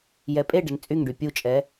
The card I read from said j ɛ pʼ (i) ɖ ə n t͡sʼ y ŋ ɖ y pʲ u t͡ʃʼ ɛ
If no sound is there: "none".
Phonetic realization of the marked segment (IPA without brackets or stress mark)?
e